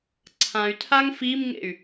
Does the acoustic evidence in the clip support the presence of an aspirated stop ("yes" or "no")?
yes